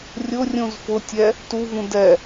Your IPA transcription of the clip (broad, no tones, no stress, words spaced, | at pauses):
rʲʊrʲũz fʊtʲɛ | tuvũ dɛ